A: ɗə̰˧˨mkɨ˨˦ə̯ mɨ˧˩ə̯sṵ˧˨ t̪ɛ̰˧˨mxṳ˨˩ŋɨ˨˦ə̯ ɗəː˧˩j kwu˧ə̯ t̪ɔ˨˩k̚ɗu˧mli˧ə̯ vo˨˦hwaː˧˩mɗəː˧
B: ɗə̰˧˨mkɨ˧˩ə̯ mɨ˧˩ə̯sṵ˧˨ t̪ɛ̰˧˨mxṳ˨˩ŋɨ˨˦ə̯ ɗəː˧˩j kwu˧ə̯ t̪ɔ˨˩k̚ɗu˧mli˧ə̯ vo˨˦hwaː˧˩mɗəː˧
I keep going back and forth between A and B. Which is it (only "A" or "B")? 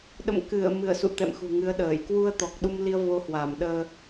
B